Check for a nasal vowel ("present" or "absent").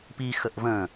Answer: present